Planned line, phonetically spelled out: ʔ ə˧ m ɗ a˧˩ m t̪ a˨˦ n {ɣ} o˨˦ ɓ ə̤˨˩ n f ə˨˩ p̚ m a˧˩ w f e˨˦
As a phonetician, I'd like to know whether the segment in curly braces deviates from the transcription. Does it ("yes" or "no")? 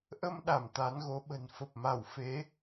no